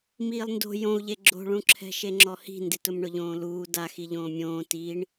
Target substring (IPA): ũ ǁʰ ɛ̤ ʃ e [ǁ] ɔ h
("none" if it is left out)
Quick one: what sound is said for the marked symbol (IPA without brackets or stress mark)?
ŋ͡ǁ